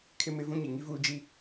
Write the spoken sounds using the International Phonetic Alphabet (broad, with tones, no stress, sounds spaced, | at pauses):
kʰ ɪ˦ m ɪ˦ v ũ˦ ɲ i˨ ŋ i˦ v uː˦ d͡ʒ i˦